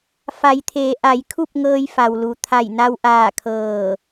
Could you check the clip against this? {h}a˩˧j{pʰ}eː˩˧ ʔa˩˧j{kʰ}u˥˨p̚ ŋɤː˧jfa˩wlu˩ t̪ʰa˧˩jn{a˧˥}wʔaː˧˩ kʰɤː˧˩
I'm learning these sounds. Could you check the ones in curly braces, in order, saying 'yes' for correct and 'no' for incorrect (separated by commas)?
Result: no, no, yes, no